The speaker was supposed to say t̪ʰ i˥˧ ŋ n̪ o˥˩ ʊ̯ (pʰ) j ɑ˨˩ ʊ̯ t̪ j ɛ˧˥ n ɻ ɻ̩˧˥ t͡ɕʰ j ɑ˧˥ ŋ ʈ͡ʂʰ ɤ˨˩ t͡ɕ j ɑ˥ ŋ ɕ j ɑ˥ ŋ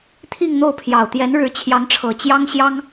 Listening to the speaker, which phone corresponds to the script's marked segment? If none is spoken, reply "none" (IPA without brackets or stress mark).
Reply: pʰ